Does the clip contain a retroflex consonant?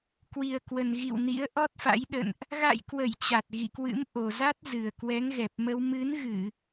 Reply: no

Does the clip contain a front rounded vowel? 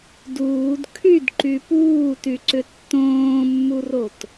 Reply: yes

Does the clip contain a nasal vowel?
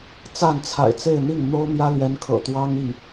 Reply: no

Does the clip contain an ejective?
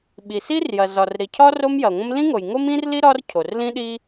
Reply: no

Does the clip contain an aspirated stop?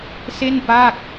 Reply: no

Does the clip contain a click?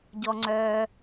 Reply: yes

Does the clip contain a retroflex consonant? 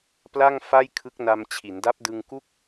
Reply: no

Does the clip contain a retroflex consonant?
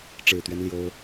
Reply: yes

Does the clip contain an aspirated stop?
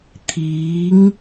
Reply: yes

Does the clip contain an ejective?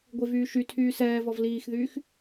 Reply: no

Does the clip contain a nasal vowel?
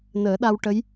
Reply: no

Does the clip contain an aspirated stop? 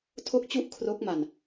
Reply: yes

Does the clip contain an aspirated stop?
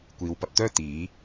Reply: no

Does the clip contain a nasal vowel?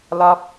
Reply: no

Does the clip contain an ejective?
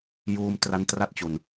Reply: no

